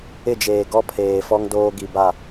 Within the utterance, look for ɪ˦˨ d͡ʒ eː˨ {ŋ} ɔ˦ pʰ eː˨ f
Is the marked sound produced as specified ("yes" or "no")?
no